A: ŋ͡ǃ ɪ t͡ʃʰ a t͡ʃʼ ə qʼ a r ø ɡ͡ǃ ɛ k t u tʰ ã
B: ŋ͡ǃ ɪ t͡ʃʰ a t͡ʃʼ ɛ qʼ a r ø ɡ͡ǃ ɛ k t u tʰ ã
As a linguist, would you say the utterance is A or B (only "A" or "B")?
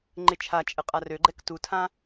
A